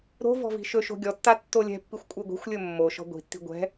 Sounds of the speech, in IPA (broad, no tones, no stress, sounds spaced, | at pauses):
ɾ o̤ v ɔ̤ v i̤ ʃ ɵ ʃ o̤ ɡʲ ɔ tː a tː o lʲ ɛ̤ pː i xʷ kʷʼ ɨ ɡʷ i̤ xʷ lʲ ɵ mː o ʃ ɔ̤ ɡʷ i̤ tː i̤ ɡʷ ɛ̤